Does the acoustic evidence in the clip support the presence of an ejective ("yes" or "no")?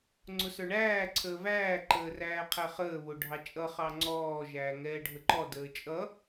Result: yes